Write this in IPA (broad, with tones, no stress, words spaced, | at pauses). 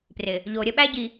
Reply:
prɪ˨ | ʎo˨ɾʲə˦ ɓæ˦ɟi˨